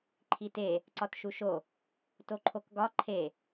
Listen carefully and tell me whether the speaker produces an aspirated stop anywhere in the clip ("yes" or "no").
yes